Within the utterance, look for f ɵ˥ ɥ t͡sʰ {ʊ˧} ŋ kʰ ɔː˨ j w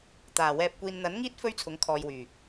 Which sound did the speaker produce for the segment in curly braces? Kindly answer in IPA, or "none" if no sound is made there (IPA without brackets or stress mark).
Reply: ʊ˨˥